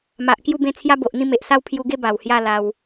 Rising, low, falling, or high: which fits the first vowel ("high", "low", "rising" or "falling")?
low